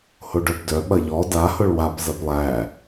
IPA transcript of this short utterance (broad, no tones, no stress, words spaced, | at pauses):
hoɖœbdœ ɓɐʎɔ da hʊɭwap zɐplˠæ